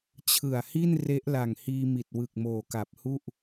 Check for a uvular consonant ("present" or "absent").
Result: absent